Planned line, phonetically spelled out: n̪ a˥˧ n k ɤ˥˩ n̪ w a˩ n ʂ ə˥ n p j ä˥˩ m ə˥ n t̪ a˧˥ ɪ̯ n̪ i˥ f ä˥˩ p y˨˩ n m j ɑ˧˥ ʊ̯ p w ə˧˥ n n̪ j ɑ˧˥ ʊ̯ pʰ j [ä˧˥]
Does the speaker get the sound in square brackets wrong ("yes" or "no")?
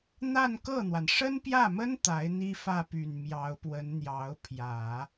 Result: yes